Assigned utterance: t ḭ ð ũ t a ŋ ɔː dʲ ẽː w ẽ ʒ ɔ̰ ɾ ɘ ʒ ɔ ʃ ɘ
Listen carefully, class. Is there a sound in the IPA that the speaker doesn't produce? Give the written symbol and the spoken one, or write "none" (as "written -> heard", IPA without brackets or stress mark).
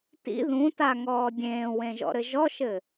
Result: none